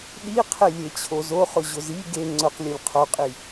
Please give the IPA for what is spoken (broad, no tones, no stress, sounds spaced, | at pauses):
ɗ i qʰ e lʲ e t͡ɕʰ o z o χ ʊ ʑ ʊ z i ɡ e ŋ͡ǀ ʊ q lʲ ʊ lʲ qʰ o qʼ i